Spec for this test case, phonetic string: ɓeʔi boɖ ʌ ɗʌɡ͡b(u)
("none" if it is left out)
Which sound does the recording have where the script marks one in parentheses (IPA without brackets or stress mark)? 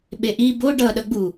u